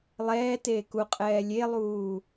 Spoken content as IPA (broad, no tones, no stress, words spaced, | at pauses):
lˠɛːteː kuqʼɛː lʲelˠuː